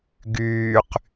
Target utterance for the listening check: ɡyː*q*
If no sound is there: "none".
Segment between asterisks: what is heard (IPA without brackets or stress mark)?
q